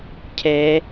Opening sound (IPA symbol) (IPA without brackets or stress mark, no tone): cʰ